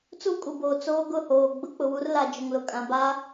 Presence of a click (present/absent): absent